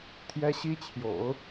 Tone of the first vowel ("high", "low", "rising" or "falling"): high